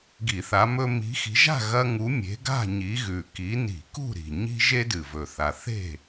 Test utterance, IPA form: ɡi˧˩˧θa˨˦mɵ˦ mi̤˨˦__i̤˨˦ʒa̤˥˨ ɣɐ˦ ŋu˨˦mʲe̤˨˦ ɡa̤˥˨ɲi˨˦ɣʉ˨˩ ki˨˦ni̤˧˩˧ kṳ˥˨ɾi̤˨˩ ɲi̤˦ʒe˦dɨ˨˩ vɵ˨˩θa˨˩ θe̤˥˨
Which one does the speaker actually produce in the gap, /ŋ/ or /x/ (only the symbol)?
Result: x